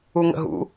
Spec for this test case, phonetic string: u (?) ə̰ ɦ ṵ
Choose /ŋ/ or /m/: ŋ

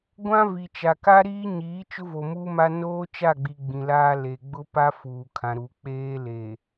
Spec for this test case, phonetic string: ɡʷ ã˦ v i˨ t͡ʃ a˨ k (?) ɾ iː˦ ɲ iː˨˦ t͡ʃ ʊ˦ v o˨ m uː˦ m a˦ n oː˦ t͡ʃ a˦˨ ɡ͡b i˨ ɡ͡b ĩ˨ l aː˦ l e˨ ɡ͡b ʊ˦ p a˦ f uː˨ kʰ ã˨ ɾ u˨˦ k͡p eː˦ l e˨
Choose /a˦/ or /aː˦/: a˦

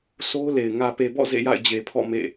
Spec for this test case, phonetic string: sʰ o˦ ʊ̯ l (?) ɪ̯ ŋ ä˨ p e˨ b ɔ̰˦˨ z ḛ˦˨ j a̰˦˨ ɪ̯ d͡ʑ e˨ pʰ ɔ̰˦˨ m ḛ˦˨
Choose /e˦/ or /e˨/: e˨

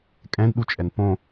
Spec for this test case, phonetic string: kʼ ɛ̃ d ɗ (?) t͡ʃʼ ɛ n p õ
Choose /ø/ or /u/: u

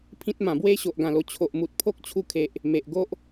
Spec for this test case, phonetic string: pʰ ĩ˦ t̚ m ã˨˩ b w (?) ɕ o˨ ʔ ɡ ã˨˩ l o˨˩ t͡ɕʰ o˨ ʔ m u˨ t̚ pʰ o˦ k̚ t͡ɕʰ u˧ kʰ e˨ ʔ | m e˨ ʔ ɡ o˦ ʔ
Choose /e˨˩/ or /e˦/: e˦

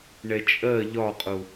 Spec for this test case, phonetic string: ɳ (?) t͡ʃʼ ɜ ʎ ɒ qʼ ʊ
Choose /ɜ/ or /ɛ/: ɛ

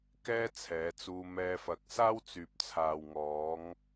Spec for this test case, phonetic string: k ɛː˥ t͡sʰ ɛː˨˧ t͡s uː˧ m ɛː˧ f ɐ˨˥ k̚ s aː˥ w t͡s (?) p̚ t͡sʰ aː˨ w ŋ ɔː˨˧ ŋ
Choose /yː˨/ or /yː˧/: yː˨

